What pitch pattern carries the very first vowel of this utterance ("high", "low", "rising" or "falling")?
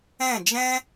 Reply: falling